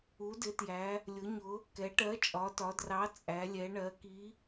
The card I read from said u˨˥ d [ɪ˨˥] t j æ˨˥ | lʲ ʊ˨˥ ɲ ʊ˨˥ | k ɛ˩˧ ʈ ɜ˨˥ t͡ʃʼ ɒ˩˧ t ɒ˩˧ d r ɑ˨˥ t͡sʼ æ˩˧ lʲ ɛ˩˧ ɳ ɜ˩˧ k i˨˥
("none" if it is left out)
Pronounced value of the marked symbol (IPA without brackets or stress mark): ɪ˨˥